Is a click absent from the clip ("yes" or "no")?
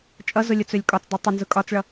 yes